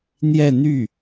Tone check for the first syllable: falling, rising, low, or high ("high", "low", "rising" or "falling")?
falling